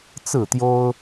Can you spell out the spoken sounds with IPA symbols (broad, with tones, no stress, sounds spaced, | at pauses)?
t͡s ɹ̩˥˨ t̪ j o˦ ʊ̯